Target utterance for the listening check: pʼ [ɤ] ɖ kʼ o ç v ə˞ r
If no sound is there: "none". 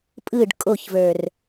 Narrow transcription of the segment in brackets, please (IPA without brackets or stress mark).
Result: ɯ